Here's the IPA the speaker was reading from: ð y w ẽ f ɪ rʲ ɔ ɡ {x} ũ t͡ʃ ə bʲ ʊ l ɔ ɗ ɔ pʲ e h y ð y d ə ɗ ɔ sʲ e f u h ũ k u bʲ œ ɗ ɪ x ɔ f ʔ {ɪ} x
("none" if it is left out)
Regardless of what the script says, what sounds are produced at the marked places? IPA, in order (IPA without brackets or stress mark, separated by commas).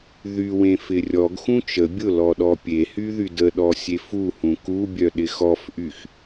x, y